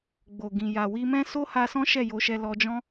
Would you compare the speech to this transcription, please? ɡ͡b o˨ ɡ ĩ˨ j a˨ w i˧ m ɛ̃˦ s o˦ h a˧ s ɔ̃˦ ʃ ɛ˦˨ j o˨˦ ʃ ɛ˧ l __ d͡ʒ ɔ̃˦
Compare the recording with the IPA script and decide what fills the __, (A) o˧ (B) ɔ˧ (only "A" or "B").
B